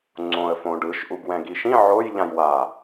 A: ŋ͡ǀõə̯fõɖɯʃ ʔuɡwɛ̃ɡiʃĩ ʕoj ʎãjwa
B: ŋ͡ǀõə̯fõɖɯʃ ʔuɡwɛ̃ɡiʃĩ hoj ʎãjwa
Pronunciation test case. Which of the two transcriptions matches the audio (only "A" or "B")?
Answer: A